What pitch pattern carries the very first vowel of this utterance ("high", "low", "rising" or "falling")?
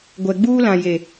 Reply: low